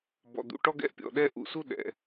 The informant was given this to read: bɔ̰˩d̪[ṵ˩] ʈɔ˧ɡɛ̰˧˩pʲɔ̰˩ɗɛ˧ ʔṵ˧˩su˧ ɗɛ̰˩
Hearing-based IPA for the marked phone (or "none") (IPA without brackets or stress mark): ṵ˩